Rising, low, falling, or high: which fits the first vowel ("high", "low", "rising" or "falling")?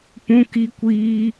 high